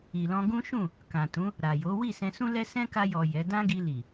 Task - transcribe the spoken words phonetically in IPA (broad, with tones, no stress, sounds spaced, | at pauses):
i˨ l ɔ̃˧ ɡ ũ˦ ʃ ũ˦˨ | k ã˨ t ũ˨˦ | ɾ a˨ j o˨˦ w i˦˨ s ɛ̃˧ s ũ˦ l ɛ˦ s ɛ̃˦ k a˧ j ɔ˨ j ɛ˨˦ d ã˦ ɡ i˧ l i˨